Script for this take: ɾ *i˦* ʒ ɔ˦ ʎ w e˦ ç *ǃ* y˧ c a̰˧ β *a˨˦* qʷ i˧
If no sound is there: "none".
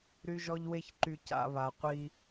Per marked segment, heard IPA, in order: y˦, ǃ, a˨

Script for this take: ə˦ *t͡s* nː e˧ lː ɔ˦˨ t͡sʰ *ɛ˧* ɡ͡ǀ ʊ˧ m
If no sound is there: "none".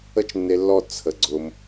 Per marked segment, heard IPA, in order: t͡ʃ, ə˧

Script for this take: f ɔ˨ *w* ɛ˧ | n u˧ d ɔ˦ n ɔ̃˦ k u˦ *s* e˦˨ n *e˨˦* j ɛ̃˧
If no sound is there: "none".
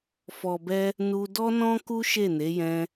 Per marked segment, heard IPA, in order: b, ʃ, e˨˦

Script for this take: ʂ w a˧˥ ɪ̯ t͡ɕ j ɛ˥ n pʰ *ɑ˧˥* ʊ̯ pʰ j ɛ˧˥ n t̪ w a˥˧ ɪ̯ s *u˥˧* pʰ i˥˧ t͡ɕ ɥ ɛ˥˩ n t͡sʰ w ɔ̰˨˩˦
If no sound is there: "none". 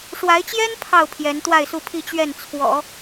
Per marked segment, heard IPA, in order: ɑ˥˩, u˥˧

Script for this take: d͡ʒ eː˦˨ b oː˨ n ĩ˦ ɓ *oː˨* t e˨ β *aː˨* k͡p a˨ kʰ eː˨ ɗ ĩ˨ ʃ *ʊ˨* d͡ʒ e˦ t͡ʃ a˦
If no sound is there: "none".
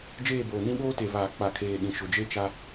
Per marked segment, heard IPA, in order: oː˦, aː˨, ʊ˨

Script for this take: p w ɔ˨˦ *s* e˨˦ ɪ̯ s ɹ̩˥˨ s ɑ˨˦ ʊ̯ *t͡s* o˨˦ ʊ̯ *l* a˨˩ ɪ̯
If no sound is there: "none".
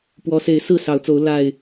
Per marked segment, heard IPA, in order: s, t͡s, l

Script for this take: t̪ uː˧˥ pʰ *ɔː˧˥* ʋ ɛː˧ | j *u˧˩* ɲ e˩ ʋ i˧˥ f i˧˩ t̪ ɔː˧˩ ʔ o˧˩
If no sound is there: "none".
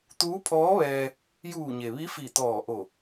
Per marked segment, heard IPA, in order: ɔː˧˥, uː˧˩

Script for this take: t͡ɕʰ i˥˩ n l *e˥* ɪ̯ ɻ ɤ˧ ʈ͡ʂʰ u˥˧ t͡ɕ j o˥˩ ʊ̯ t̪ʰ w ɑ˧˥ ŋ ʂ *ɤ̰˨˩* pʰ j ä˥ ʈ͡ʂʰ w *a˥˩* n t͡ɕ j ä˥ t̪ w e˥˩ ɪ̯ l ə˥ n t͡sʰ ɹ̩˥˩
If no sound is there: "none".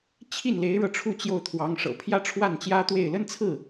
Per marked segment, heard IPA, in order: e˧˥, ɤ̰˨˩, a˥˩

